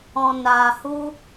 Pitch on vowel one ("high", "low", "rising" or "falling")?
low